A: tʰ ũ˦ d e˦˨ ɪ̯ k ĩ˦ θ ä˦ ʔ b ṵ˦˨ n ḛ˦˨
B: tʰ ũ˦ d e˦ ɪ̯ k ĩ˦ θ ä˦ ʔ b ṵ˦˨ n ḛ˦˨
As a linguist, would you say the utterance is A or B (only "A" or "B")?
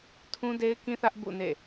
B